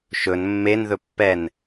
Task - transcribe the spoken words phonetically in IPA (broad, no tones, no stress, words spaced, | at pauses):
ʃɵn mːen ðɵpːɛn